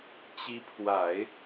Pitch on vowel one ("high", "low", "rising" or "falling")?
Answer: rising